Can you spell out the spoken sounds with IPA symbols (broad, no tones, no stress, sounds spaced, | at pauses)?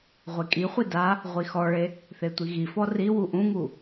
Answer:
ʁʷ e kʼ i χʷ i d a | ʁʷ i x ɔ ɭ e | θ e tʷ i ɣ i f ɔ r i w u ʔ ũ ŋ u